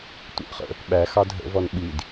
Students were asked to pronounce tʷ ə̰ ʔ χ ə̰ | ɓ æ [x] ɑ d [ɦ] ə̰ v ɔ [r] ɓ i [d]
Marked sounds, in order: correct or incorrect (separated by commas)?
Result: correct, correct, incorrect, correct